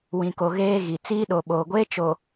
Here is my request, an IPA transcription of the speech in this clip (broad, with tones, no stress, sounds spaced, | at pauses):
w ĩ˨ k o˨ ɣ eː˦ ɣ i˨ t͡s iː˦ ɗ o˨ ɓ oː˨ ɡʷ eː˦ t͡ʃ o˨